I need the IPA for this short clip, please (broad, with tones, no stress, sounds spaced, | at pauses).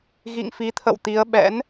ɣ ḭ˧˨ ŋ f i˨˦ t̪ʰ ə̰˧˨ w t̪ i˨˦ ə̯ ɓ ɛ̰˧˥ n